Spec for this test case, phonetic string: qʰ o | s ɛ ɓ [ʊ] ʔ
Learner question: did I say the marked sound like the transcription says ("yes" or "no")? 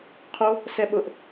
yes